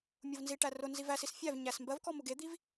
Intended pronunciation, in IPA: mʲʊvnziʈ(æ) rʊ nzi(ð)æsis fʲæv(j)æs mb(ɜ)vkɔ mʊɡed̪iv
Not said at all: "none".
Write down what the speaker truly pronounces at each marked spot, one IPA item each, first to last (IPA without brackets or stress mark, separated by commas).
æ, v, ɲ, ɜ